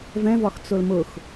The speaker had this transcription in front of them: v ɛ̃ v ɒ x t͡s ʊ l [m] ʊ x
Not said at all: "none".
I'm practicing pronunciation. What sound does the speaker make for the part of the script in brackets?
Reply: m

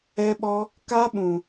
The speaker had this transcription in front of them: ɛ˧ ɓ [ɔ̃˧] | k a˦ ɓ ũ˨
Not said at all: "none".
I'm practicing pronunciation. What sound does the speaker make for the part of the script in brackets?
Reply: ɔ˧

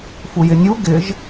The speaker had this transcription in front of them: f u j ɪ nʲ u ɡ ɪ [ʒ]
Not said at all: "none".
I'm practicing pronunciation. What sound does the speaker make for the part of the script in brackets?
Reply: ʒ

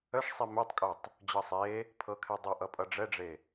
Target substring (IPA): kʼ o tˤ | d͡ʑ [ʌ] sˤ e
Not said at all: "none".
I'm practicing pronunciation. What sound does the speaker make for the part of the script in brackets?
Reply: ʌ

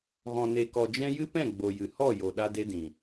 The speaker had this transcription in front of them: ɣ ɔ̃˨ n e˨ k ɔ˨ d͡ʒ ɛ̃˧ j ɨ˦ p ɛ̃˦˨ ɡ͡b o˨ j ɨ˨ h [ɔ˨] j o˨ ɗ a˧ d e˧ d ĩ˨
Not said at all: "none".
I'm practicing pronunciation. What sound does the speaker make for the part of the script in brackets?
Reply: ɔ˦˨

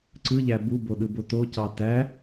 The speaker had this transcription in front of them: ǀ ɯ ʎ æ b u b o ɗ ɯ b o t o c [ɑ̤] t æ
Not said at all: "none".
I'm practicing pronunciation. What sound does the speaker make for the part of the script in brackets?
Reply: ɑ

